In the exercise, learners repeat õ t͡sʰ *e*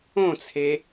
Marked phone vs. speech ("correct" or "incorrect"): correct